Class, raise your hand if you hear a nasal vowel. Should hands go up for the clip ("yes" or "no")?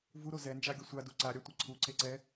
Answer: no